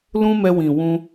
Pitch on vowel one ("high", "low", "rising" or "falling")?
high